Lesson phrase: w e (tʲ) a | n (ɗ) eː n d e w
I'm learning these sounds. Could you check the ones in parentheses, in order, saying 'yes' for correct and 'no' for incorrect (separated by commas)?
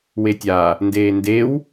yes, no